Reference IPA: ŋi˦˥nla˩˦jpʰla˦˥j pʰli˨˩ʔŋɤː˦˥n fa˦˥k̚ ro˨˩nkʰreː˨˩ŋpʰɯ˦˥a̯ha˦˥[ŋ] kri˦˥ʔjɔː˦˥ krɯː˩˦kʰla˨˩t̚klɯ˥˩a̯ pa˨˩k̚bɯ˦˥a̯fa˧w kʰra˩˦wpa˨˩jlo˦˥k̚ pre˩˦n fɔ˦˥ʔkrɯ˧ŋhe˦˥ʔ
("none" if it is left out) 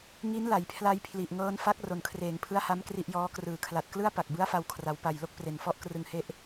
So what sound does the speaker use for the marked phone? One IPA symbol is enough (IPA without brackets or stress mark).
m